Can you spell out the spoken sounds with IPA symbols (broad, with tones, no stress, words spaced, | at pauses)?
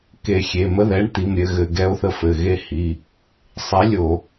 ke˧˩˧xʲe˩˧˩ mə˦ðɛ˨˥ɳt̪i˩˧˩m ɾʲɘ˦˨ɣɘ˧˩˧ ɡɛ˨˥o̯θə˦˨fɘ˩˧˩ɣe˦˨ hi˩˧˩ | sˤe˨˥lʲo˧˩˧